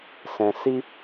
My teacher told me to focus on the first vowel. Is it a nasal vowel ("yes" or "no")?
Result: yes